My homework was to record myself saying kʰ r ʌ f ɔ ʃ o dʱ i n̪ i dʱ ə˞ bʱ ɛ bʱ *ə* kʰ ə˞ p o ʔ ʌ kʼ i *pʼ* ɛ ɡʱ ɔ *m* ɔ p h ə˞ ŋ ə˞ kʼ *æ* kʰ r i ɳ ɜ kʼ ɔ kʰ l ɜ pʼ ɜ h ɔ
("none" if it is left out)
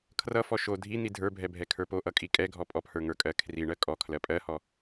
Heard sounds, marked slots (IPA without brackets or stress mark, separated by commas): ɛ, kʼ, pʼ, ɜ